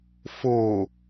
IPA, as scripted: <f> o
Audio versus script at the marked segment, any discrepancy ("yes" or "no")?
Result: no